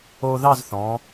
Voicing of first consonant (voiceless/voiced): voiced